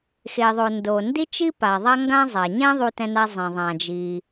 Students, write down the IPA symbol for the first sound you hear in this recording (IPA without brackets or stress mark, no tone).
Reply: x